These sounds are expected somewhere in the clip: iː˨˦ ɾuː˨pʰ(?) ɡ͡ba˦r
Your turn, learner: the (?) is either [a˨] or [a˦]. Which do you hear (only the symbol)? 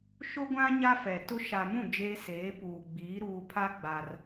a˦